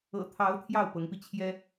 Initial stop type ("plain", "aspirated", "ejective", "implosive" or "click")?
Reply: aspirated